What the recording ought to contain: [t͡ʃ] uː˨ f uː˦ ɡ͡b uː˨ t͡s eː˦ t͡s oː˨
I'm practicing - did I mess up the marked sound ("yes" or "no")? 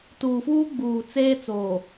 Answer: yes